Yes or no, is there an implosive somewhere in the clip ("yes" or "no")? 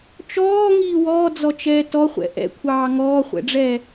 no